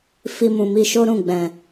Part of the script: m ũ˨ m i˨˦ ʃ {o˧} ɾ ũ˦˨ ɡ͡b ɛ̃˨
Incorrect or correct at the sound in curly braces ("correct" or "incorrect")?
incorrect